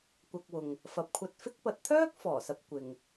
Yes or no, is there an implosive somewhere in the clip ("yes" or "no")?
no